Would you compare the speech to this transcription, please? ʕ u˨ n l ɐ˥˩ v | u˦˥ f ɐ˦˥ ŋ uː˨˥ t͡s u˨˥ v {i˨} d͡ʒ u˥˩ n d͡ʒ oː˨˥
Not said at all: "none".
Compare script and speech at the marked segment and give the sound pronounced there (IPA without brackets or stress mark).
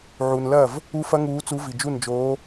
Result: i˨